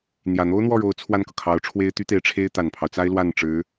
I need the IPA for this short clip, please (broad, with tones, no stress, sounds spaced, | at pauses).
n̪ j ä˨˩ n̪ o˥ ʊ̯ n̪ w ɔ˥˩ ɻ o˧˥ ʊ̯ t͡sʰ w a˥˩ n k ɤ˩ kʰ ɑ˧˥ ʊ̯ ʈ͡ʂʰ w e˥ ɪ̯ t̪ y˥ t̪ e˧˥ ɪ̯ ʈ͡ʂʰ e˥ ɪ̯ t̪ a˨˩ n pʰ ɑ˦ ʊ̯ t͡s a˥ ɪ̯ l w a˥˩ n ʈ͡ʂ ɻ̩˧˥